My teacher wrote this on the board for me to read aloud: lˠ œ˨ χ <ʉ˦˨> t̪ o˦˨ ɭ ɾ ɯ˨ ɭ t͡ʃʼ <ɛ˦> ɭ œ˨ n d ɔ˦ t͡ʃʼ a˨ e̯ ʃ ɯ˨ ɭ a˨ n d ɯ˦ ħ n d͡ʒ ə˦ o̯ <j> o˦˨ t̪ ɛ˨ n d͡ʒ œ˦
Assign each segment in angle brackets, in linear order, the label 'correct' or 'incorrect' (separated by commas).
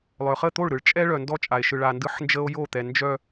incorrect, correct, correct